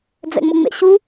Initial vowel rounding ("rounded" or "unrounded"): unrounded